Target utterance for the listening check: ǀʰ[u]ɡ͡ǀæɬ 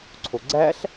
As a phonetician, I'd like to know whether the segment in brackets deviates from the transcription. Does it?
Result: yes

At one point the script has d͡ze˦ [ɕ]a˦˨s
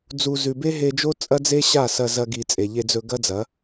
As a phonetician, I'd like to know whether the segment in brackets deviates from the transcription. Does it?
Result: no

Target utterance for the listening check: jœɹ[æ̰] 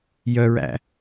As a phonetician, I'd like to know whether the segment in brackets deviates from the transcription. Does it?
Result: no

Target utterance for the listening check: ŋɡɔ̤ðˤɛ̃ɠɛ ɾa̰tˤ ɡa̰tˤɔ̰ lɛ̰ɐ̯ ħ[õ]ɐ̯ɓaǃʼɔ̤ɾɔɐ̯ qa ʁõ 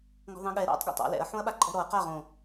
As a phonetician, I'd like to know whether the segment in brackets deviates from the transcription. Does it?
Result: no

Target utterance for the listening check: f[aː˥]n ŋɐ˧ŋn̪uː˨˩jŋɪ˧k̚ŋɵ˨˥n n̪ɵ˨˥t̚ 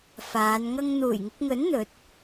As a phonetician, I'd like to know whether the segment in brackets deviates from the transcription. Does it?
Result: yes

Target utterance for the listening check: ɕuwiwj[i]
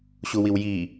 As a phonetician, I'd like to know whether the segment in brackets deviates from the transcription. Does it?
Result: no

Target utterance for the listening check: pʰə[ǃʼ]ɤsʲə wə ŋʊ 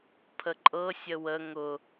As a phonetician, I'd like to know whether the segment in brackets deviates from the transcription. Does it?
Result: no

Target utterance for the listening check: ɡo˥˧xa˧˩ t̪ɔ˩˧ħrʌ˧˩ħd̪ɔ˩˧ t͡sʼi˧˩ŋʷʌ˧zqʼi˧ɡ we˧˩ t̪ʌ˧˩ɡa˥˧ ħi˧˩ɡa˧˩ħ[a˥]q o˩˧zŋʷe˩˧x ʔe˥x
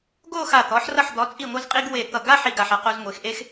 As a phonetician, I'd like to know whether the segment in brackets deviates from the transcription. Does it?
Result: yes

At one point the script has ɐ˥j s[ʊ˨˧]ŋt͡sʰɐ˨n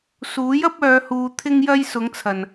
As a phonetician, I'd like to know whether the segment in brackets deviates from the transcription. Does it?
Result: no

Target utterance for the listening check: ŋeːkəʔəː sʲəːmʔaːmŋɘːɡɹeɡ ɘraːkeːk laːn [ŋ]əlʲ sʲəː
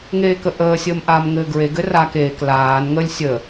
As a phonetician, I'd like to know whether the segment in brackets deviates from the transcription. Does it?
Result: no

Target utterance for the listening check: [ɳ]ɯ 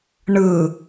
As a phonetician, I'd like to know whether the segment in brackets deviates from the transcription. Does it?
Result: no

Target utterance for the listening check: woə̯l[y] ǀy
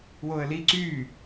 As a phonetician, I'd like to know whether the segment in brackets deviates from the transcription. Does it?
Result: yes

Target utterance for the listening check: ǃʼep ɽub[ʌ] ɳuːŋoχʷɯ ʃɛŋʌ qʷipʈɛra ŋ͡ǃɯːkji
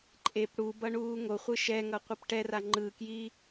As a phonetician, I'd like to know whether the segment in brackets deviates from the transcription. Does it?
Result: no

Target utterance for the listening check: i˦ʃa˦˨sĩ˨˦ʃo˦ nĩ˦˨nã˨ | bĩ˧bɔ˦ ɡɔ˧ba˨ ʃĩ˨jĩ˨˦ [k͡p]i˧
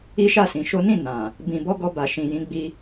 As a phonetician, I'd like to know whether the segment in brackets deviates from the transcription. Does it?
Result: yes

